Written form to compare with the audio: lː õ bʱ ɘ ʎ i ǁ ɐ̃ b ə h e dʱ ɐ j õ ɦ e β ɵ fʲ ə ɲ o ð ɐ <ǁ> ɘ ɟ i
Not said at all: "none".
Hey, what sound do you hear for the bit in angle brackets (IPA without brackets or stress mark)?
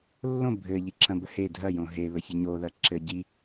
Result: ǁ